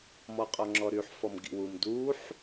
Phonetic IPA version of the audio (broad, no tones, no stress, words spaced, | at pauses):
mɔqʼɔŋ͡ǁɔɾyħ fɔmɡḭwum duħ